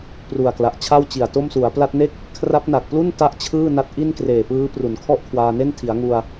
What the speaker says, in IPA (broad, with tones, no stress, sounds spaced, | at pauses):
p r u˨˩ a̯ k l a˨˩ ʔ t͡ɕʰ a˥˩ w t͡ɕ i˨˩ a̯ t o˥˩ m s u˩˦ a̯ p l a˦˥ t̚ n e˥˩ k̚ | kʰ r a˦˥ p̚ n a˨˩ k̚ p l u˥˩ n t a˥˩ ʔ t͡ɕʰ ɯː˥˩ n a˦˥ t̚ ʔ i˥˩ n k r eː˨˩ p ɯː˦˥ p r u˩˦ n kʰ ɔ˥˩ ʔ kʰ w aː˧ n e˥˩ n tʰ i˩˦ a̯ ŋ u˧ a̯